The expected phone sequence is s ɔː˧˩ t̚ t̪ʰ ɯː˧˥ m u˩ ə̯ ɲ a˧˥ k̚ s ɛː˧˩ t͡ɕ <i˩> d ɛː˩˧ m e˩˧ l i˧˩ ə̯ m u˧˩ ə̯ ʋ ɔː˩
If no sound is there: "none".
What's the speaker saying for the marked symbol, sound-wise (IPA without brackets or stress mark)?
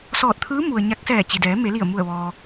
i˩